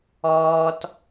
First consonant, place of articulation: alveolar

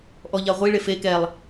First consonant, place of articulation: glottal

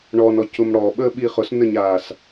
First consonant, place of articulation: retroflex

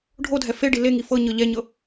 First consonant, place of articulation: retroflex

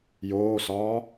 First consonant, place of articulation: palatal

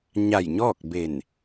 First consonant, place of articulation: palatal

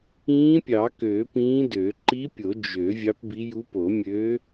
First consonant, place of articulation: labial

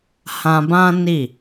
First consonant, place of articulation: glottal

